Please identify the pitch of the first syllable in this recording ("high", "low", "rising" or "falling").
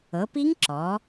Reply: rising